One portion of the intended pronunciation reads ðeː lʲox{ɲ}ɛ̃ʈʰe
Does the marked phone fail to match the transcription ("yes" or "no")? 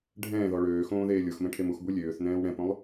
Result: yes